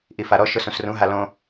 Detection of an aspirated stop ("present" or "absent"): absent